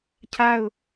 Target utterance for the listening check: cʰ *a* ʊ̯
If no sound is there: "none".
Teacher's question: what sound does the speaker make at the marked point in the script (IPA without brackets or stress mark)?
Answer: a